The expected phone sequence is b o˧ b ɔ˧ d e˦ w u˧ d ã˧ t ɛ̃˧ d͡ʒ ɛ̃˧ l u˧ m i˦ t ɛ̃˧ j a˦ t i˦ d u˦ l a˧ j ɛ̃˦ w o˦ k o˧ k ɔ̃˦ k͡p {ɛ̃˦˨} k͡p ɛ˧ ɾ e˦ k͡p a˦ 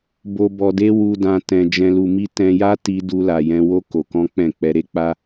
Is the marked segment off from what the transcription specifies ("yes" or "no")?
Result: no